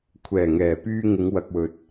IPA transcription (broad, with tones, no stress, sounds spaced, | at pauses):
kʷʰ ɛː˨˩ ŋ ɛː˨˩ p yː˧ ŋ ɪ˨˧ ŋ w ɐ˨ k̚ w ɵ˨ t̚